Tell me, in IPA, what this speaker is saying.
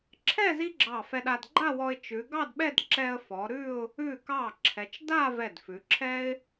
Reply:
ǁʰɛ˥˧ zi˥ɡ͡ǁɑ˧˩fɛ˧ɗa˧d ɡ͡ǃa˥˧wɔ˧ɪ̯ t͡ʃʉ˩˧ɡɑ˥˧dɓɛ˥˧dǁɛ˧ə̯ fɔ˩˧ɾʉ˥˧ʊ̯ | ʉ˧˩kɑ˧˩ǁʰɛ˩˧t͡ʃ da˥˧ vɛ˧˩dfʉ˩˧ǁʰɛ˥ɪ̯

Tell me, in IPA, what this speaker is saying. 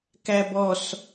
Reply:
kæbɔs

